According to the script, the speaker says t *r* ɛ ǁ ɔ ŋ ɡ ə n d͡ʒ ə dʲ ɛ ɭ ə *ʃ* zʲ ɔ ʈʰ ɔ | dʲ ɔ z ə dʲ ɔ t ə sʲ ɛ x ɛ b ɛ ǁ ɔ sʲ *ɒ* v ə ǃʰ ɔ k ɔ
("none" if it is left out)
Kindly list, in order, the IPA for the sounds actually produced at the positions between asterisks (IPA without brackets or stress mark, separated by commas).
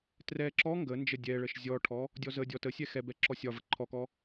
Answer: r, ʃ, ɒ